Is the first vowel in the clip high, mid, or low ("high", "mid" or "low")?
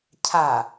low